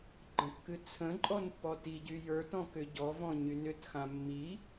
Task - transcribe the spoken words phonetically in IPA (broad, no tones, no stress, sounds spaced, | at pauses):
ɡ͡ǃ ə̃ kː ɨ t͡sʰ ə̃ ǃʼ ɔ n pː ɔ t i ɟ y j ə˞ t ɔ̃ k ʏ ɟ ɔ v ɔ̃ ɲ y n ʏ t x ã mː i